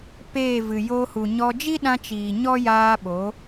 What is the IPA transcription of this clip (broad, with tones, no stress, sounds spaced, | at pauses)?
p eː˦˨ v ɨ˨ j oː˧ h u˨ ɲ ɔ˧ d͡ʒ i˦ ɗ ã˧ t͡ʃ iː˨ ɲ ɔ˦ j aː˧ ɓ o˨˦